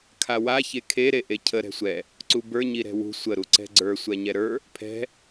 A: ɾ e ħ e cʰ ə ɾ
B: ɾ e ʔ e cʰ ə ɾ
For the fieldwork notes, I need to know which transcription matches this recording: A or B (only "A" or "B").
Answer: B